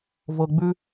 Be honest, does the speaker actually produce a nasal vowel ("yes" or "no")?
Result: no